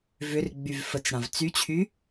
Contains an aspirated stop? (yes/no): yes